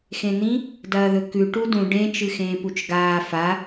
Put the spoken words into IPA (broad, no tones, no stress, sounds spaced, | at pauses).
x ẽ n̪ ĩ | d ɐː ð ɵ k ʉ ʈ u d ũ ɖ ẽ t͡ʃ ɨ x ẽː p u t͡ʃ ɡ aː f a